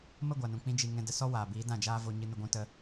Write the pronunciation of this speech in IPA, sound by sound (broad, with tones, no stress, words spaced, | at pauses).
mə˦˨ɡʷa˨nũ˨ k͡pĩ˦d͡ʒi˧ ŋɛ̃˧də˧ sɔ˦waː˨biː˨˦ dã˦˨d͡ʒaː˦vo˧ ɲɨ˧nə˧ɡʷũ˧ tə˧